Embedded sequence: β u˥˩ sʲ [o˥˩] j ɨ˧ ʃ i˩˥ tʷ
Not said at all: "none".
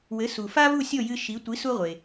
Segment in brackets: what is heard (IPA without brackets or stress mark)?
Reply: o˥˩